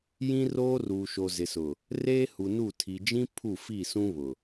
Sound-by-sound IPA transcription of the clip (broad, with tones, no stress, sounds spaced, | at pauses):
j ĩ˦ r oː˦ r uː˨ ʃ o˨ z ɪ˨ s ʊ˨ | r eː˦ h u˨ n u˦˨ tʰ i˨ d͡ʒ ĩ˦ pʰ u˦˨ f i˦˨ s ũ˦ β ʊ˨